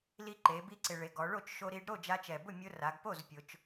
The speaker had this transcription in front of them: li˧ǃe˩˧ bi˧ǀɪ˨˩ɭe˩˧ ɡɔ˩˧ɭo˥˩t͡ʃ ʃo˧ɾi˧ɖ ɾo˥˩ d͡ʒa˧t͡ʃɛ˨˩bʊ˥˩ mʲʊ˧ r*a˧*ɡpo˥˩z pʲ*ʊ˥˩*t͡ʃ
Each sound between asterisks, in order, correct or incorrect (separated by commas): incorrect, incorrect